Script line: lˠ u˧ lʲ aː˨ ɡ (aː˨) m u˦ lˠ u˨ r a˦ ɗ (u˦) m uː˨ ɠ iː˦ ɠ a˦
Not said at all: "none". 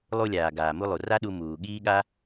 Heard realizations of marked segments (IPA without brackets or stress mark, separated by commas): aː˨, u˧